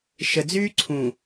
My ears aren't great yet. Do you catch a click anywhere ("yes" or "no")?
yes